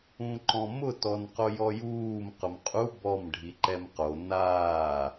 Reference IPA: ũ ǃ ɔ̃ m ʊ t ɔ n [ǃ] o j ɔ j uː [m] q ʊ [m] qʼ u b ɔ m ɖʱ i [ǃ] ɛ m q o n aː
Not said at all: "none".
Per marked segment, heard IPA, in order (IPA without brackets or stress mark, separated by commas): q, m, m, ǃ